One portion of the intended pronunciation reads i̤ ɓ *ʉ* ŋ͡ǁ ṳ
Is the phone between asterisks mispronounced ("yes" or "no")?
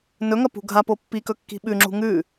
no